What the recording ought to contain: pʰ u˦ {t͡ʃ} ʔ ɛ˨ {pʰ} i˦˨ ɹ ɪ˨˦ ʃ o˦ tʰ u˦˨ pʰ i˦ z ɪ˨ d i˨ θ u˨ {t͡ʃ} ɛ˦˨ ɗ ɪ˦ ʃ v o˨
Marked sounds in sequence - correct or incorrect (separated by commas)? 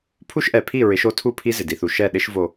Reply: incorrect, correct, incorrect